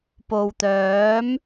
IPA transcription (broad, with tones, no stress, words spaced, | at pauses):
po˨wt̪œː˨˥m